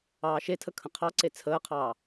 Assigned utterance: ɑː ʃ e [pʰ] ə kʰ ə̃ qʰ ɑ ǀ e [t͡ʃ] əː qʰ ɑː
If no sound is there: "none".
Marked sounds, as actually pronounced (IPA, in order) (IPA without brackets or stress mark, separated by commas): tʰ, t͡sʰ